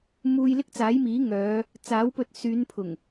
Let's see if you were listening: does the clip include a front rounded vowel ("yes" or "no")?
yes